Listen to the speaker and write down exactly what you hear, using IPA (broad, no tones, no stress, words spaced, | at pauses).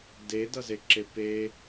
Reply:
dedʌzeǁe pe